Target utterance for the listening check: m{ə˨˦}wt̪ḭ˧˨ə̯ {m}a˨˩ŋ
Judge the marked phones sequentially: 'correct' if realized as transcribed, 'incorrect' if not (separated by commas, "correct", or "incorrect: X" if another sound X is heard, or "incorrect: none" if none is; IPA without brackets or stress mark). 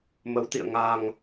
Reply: correct, incorrect: ŋ